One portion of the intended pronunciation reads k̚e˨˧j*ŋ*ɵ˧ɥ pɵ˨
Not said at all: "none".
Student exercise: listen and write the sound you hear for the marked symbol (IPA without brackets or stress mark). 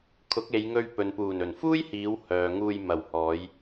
ŋ